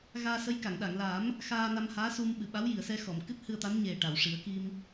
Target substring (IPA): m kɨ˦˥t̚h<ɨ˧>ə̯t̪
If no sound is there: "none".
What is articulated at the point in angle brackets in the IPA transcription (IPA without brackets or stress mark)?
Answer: ɨ˧